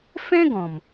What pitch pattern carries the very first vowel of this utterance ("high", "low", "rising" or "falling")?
high